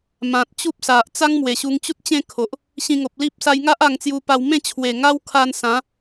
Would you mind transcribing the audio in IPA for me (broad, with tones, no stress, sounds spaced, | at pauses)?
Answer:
m ã˨ t̚ t͡ɕ u˦ p̚ s a˨ ʔ t͡s a˦ ŋ m w e˨˩ ɕ u˧ ŋ t͡ɕ u˦ t̚ t͡ɕ ẽ˥˧ kʰ o˨ ʔ | ɕ ĩ˧ ŋ o˨ p̚ l i˦ p̚ s a˧ j ŋ a˦ ʔ a˧ ŋ t͡s j u˧ p a˧ w m ẽ˥˧ t͡ɕʰ w e˨˩ ŋ a˦ w kʰ a˧ n s ã˨˦